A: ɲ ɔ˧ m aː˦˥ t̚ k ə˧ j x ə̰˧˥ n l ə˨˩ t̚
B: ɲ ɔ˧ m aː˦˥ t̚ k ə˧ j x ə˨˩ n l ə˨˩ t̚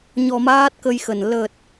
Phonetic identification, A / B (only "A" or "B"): B